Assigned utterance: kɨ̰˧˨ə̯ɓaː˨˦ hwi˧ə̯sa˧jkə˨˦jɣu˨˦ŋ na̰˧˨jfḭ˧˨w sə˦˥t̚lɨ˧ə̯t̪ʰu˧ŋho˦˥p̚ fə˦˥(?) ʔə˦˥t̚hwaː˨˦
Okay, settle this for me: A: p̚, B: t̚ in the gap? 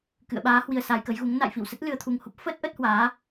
B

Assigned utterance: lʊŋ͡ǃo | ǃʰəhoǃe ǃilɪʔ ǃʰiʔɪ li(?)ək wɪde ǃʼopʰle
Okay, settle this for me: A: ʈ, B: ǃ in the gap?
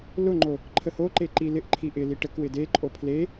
A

